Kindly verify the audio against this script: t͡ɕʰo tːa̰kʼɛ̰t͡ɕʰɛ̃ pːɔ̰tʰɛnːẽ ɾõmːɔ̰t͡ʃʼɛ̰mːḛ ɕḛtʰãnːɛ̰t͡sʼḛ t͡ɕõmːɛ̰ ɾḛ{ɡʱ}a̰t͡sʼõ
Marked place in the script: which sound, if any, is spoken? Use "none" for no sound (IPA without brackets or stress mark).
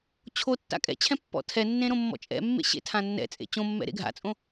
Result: ɡʱ